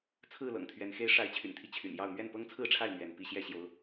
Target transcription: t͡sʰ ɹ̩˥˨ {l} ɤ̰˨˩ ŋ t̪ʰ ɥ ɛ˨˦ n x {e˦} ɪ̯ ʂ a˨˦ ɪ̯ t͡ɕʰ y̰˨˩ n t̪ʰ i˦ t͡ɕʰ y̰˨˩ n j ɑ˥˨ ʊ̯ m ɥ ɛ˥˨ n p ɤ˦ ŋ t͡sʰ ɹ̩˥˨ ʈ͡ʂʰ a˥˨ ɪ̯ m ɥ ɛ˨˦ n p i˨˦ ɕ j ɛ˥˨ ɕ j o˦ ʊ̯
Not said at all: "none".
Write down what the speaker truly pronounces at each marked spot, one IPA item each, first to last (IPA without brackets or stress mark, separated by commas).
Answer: l, e˦